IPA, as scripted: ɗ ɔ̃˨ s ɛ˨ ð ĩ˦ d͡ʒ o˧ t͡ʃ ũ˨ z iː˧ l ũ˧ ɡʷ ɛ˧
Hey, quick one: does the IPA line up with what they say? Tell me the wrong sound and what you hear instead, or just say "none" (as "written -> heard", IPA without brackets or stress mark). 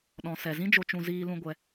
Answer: ð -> z